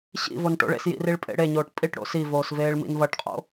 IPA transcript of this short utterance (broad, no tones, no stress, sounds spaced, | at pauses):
ɕ ḭ v o n ʈ o̰ ɭ ḛ s j ḭ r i ɭ pʼ ḛ ɽ e ɲ oː ʈ pʼ i ʈ ɽ o̰ s i v oː s v eː ɭ m ḭ n v ʌ ʈ qʼ o̰